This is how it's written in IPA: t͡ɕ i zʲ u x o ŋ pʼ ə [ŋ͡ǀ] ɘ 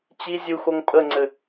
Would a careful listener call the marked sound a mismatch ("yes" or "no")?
no